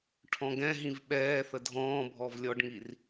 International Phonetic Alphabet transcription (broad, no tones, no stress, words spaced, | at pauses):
ʈʰɔ̃ɡɛ̃ɦĩv ɓɛː θədʱɔ̃ːbʱɔv lʲɔɖŋir